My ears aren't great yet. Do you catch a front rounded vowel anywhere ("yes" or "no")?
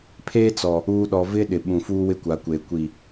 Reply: no